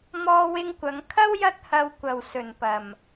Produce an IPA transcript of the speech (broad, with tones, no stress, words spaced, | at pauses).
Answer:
mɔː˧wɪ˧ŋkʷɐ˨˧ŋkʰɐ˥w jɐ˥t̚hɐ˧wkʷɐ˨w sɵ˨npɐ˨m